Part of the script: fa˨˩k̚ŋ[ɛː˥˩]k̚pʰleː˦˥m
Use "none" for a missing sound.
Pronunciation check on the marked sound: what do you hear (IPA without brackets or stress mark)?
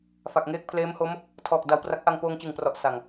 eː˥˩